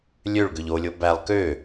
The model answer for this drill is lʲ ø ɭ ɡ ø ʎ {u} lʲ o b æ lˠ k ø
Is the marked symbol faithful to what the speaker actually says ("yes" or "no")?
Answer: no